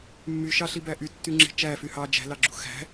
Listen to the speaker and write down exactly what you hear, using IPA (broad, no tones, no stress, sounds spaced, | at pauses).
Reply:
mː y ʃ ɑ ɬ i b æ ʔ y tː y ŋ͡ǁ e̤ t͡ʃ æ f y h ɑ d͡ʒ æ̤ l ɑ ɡ͡ǁ ṳ x æ̤